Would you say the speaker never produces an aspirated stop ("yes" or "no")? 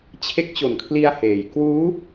no